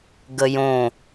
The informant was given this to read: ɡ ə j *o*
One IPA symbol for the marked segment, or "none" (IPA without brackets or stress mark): õ